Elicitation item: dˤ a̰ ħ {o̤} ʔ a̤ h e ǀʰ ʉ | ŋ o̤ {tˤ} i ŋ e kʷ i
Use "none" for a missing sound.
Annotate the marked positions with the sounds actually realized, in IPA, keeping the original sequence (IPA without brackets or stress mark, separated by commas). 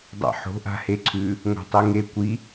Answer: o̤, tˤ